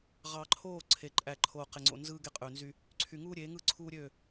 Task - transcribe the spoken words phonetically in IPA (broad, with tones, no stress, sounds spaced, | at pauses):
ʁ ɑ˨ ǃʰ oː˦˨ ǀʰ e˨ ǃʼ æ˨ ǃʰ oː˨ q e˨ ŋ͡ǀ o̰˨ n z ɯː˦ ɡ e˦ qʼ ø˨ n z y˦ | ǀʰ y˨ ŋ uː˦ ɾʲ e˨˦ ŋ ɯ˦˨ ǀʰ uː˦ ɾʲ ø˦˨